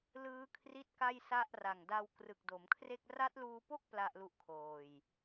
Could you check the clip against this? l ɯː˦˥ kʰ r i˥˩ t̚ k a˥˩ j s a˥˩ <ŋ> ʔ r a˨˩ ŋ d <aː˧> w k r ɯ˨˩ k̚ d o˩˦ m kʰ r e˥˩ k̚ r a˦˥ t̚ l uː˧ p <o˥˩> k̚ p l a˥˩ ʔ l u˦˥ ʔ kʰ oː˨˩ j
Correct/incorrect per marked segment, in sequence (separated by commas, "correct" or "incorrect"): incorrect, incorrect, correct